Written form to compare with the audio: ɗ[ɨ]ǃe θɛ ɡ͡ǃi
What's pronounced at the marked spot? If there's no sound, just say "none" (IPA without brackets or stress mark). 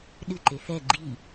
ɨ